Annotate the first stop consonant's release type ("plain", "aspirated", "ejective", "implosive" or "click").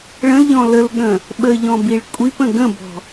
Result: implosive